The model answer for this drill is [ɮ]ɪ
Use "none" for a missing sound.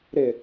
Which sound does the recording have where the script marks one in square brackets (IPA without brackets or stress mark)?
ɾ